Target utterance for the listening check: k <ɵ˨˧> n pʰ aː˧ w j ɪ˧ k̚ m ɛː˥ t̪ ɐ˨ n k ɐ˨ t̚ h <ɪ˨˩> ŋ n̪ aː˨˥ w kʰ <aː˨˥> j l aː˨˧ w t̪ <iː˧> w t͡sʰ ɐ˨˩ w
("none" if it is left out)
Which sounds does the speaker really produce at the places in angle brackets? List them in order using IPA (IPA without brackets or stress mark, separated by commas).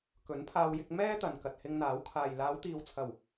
ɵ˨˥, ɪ˧, aː˨, iː˨